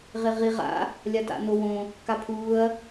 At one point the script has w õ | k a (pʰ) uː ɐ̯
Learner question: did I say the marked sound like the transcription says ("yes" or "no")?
yes